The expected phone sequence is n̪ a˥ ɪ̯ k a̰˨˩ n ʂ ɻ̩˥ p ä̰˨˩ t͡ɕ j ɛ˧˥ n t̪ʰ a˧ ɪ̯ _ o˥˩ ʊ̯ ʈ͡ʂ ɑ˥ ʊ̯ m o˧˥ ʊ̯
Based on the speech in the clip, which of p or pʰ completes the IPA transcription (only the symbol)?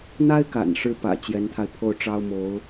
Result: pʰ